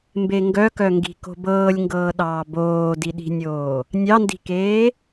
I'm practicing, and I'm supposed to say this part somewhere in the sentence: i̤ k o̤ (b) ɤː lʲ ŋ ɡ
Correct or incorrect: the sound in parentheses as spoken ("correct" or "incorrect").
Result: correct